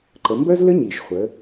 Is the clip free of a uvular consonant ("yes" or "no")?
no